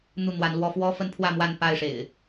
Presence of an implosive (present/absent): absent